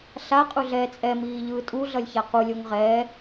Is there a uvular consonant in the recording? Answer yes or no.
yes